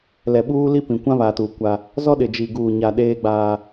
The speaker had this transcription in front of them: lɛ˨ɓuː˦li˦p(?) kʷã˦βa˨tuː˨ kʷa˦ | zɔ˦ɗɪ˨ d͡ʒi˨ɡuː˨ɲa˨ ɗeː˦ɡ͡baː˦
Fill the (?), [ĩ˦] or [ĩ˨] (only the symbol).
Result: ĩ˨